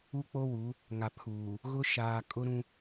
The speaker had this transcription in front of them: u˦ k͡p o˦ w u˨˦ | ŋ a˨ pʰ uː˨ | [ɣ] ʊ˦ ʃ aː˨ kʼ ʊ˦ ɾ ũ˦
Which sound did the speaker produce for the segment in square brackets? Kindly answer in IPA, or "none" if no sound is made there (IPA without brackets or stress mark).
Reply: ɣ